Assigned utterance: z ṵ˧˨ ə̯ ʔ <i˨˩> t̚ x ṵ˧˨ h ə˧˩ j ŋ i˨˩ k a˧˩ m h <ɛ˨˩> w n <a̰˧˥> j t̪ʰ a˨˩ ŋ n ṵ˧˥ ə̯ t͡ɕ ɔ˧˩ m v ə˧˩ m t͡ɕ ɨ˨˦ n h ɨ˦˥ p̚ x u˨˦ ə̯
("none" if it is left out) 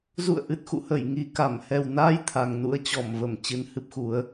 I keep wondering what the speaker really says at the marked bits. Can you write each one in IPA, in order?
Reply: ɨ˨˩, ɛ˨˩, a˧

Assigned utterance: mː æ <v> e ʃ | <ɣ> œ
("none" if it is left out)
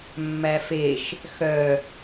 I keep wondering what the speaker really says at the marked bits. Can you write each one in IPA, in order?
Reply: f, x

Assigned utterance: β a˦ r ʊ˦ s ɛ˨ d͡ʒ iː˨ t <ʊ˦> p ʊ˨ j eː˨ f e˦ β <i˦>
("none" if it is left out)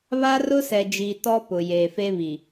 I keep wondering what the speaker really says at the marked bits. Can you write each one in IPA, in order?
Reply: ɔ˦, i˨

